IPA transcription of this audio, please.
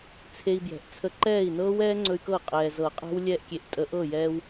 t͡sʰe˧i̯bjɛ̤˩ʔt͡sʰə˧ ǃɛː˥˩i̯nɤː˦˥wɛː˦˥ ŋ͡ǀɵ˧y̯kɤ˥˩ qʼɛː˩zɤ˨˩˦qʼɛ̤˦˥w lʲɛː˧ʔkʲe˩ʔ tʼə˨˩˦ʔ ɤ˥˩jɛː˧w

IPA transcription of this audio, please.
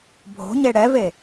bʱo̤ ɲeɽɛve

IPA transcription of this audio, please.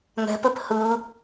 ŋɛ̤pɘp hɯ

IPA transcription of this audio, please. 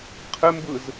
qʰɘmbɯz

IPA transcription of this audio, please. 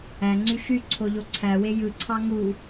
æŋ͡ǀy ʃy ǀʰoʎoǀʰæwe jɯǀʰɑ ŋu

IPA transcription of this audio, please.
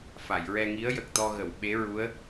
fa˨˩˨jɹɛ˧ŋi˧˥ə̯ jə˨˩k̚t̪ɔ˧ɣə˨˩˨w ɓe˧˥ɹu˧˥ə̯

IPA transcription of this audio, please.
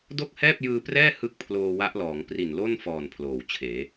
do˥˩k̚hɛː˥˩p̚jɯː˧prɛː˥˩ hɯ˥˩k̚pʰloː˧wa˦˥ʔlɔː˩˦ŋ pri˨˩nlo˥˩n fɔː˨˩n pʰloː˨˩wt͡ɕʰeː˩˦

